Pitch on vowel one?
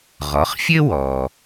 rising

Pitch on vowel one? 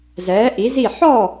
rising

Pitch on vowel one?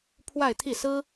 falling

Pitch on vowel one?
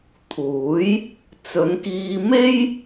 rising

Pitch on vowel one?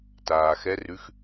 low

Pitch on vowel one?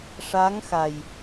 rising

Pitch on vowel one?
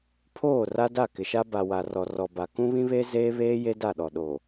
falling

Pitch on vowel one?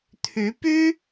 rising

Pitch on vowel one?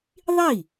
falling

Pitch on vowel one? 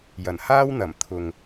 low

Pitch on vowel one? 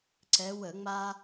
rising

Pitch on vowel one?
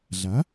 rising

